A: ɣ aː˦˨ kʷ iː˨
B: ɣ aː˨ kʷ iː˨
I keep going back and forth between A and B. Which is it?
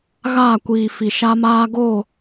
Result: A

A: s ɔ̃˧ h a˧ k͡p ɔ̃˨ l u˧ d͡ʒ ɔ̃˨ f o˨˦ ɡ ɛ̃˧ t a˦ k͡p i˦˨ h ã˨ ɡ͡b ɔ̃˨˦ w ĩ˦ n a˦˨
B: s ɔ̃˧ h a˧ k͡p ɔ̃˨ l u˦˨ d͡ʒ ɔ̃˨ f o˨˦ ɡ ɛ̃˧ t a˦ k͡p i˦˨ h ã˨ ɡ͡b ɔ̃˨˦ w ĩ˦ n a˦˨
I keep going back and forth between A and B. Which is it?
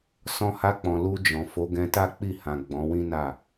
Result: A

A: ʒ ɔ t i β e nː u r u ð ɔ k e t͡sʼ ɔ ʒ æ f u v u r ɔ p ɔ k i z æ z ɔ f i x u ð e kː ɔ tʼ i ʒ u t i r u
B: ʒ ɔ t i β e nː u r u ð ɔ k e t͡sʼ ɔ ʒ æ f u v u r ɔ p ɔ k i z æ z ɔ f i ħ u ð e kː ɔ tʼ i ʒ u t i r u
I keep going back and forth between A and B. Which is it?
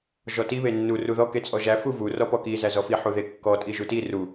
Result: B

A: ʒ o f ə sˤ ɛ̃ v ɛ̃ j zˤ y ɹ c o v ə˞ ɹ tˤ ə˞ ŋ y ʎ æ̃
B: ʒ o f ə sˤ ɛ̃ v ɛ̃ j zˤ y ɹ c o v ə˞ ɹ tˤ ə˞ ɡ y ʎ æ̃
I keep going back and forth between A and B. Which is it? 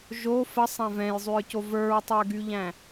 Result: B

